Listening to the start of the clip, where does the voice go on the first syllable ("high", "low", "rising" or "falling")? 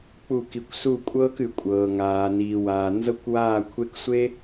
falling